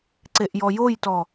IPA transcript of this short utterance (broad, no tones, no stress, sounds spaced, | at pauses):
ǀ e ʔ j ɔ j o j t ɔ